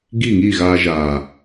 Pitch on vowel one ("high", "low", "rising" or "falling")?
falling